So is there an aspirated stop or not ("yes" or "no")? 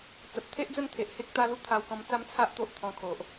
yes